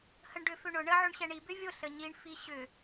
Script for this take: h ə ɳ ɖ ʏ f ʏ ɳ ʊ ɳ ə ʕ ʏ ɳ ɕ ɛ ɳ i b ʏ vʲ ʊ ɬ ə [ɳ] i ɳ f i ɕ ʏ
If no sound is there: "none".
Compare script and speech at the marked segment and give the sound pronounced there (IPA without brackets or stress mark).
ɲ